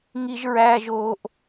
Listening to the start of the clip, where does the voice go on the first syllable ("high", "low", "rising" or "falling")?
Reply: high